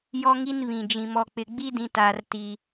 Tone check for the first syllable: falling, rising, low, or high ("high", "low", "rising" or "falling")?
high